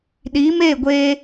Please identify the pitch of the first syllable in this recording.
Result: rising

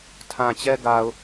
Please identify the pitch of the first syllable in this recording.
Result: low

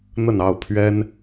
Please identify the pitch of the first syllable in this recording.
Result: falling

